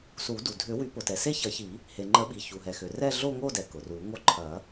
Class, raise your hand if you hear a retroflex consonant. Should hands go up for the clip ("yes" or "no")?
no